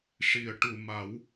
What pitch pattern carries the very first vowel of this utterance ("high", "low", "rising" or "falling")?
low